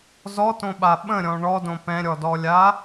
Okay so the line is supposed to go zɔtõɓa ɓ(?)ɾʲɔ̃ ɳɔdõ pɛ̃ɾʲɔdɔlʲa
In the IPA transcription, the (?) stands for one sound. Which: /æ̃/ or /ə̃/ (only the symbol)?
ə̃